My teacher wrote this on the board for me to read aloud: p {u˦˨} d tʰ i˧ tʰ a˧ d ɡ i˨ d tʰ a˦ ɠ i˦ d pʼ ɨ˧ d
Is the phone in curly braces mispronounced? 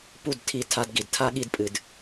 no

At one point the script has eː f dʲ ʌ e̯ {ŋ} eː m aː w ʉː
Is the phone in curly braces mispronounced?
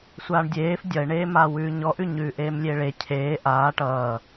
yes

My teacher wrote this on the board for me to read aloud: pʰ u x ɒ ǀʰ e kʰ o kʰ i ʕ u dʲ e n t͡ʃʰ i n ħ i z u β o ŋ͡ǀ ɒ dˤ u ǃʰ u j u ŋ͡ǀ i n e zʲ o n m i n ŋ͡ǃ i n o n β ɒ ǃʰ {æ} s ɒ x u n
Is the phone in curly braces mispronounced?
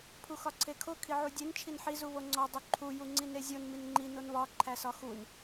no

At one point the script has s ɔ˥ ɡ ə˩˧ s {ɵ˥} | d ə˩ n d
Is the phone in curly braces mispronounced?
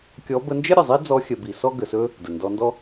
no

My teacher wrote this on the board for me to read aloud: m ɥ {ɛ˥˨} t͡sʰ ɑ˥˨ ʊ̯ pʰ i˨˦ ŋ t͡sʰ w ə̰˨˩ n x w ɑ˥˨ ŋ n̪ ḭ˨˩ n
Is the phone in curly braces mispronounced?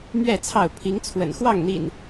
no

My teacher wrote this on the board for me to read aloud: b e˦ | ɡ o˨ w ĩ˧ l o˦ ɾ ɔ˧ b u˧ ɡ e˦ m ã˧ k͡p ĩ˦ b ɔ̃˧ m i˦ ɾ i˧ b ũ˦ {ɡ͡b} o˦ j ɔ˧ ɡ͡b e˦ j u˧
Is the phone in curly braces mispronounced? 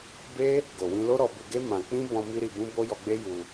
yes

